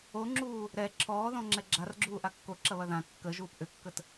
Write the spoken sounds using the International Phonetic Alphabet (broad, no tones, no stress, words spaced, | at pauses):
oŋ͡ǁuː | ɾɛ ǁʰɔːðɔ̃ŋ͡ǁɛ ɡ͡ǁarɡ͡ǁuː ʔakːoǁɐβɐ ðã kːə ʒuːpʔʏkːət